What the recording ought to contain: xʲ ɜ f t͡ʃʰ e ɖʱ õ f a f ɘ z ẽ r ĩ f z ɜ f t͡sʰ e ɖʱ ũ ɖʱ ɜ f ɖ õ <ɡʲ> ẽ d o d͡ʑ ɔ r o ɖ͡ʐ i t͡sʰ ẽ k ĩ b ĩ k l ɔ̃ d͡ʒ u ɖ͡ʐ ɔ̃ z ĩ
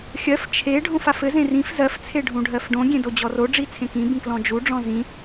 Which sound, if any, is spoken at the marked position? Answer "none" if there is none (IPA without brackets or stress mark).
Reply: ɡʲ